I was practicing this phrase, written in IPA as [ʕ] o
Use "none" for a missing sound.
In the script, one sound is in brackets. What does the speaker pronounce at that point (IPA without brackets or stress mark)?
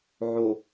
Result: ʕ